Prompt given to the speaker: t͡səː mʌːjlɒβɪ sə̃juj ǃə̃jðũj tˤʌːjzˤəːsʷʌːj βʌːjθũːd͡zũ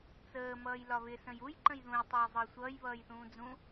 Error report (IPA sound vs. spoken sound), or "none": none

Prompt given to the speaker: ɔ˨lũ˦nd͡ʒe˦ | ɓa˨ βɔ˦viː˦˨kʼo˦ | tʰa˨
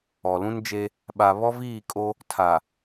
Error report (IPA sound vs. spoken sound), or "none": none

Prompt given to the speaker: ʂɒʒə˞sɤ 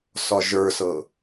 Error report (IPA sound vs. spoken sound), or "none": ʂ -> s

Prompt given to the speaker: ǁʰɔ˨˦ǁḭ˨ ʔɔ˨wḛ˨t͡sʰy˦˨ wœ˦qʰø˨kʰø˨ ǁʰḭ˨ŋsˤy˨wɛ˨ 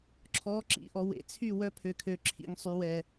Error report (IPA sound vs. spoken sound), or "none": qʰ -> pʰ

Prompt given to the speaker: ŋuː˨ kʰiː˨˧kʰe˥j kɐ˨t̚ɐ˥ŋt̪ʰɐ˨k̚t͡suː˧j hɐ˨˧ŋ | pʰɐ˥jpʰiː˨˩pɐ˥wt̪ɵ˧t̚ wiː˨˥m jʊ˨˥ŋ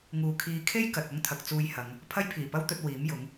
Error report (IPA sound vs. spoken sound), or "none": none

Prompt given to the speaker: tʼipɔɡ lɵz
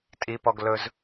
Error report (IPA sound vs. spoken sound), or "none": none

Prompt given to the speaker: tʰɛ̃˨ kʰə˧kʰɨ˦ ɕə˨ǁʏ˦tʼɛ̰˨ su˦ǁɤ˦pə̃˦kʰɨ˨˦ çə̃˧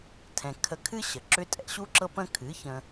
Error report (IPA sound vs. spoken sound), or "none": s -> ɕ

